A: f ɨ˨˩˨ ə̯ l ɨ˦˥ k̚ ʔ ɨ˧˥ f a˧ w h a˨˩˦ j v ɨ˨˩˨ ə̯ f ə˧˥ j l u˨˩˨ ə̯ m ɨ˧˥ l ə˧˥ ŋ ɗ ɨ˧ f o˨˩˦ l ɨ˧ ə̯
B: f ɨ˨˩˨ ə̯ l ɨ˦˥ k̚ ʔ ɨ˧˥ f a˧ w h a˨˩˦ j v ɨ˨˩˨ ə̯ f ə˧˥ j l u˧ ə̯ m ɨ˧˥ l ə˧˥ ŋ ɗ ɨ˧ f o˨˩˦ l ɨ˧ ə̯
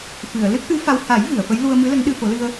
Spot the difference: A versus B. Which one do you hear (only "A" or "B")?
B